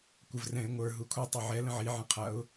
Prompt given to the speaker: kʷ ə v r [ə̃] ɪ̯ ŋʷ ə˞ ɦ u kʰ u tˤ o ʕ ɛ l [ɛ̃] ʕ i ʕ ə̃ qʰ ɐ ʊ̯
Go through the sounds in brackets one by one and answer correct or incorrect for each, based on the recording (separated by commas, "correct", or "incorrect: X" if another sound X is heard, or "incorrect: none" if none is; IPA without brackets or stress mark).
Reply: incorrect: ɛ̃, incorrect: ə̃